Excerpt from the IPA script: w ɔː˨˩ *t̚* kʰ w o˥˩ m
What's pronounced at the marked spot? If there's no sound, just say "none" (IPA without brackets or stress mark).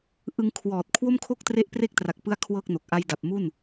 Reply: t̚